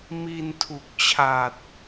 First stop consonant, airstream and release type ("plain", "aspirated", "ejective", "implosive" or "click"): aspirated